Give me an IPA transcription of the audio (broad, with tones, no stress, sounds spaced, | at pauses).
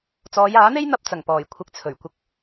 t͡s ɔː˨˧ j aː˨˥ n̪ e˥ j n̪ ɐ˥ p̚ t͡s ɐ˨˩ ŋ p ɔː˨˩ j kʷʰ ɪ˧ k̚ t͡sʰ ɵ˨˩ ɥ kʷ ɪ˧ k̚